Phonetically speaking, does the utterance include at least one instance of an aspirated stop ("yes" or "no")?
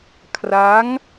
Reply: yes